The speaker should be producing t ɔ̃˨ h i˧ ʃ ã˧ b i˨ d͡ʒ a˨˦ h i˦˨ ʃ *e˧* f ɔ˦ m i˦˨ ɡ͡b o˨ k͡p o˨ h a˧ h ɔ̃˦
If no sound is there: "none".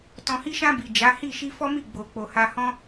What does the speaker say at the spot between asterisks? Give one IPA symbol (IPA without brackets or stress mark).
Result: i˧